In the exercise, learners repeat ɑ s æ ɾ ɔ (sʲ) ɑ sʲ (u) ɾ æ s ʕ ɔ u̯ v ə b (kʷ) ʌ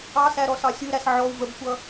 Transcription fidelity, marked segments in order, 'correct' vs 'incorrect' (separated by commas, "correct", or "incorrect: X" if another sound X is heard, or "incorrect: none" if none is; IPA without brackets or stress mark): incorrect: s, correct, correct